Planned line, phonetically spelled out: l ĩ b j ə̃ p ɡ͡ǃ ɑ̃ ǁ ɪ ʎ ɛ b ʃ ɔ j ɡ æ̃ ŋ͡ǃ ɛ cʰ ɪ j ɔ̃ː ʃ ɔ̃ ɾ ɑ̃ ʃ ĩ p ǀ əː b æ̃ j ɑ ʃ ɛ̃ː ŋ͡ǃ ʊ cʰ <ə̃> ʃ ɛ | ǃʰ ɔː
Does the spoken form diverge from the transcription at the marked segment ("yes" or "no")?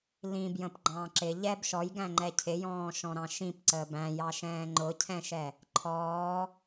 yes